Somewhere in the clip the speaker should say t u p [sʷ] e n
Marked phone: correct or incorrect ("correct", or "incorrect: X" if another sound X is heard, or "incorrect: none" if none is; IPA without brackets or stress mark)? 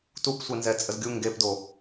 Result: correct